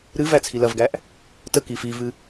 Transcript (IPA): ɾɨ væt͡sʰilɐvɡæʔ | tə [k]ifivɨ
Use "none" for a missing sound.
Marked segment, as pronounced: k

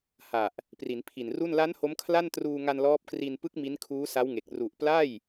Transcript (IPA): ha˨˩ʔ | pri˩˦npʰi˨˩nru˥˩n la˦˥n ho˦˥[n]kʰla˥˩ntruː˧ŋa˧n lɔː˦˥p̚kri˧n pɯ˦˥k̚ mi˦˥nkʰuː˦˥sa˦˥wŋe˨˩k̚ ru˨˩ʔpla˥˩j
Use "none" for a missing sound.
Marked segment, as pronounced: m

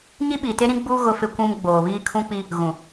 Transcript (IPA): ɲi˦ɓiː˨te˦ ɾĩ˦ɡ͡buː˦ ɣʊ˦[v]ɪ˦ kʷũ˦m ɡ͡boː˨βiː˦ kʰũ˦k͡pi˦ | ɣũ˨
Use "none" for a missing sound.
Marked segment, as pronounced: f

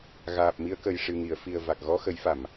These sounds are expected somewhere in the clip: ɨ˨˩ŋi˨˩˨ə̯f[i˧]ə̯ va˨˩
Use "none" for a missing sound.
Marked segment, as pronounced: i˨˩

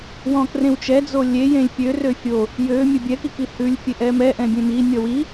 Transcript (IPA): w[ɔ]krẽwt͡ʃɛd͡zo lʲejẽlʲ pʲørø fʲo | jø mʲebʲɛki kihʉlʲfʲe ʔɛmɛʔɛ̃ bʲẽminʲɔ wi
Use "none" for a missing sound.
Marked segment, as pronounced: ɔ̃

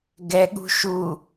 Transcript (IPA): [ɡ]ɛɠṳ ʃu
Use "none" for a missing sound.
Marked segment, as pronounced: ɡ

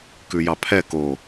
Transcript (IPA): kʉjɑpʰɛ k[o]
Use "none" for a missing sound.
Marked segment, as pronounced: o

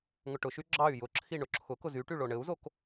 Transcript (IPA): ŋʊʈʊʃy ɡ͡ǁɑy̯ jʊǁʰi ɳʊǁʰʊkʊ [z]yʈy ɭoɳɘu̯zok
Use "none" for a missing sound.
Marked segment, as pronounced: z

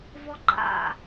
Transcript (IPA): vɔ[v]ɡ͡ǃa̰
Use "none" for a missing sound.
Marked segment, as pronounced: none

